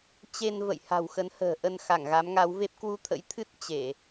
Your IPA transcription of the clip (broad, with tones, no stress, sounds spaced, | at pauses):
t͡ɕ e˧ n v ə̰˧˨ j h a̤˨˩ w x ə˨˦ n h ə̤ː˨˩ ʔ ə˧ n x a˧˩ ŋ ɣ a˨˦ m ŋ a˨˦ w v e˦˥ p̚ k w u˧ t̪ʰ ə̰˧˥ j t̪ʰ ɨ˦˥ t̚ t͡ɕ e˧˩˨